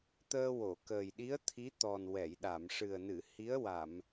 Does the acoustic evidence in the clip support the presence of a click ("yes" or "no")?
no